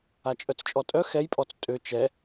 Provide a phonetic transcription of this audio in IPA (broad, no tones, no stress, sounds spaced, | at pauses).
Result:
a t͡ʃʼ œ t͡s t͡ʃʼ ɔ tʼ œ x ɛ j pʼ ɔ t͡s tʼ ø t͡ʃ ɛ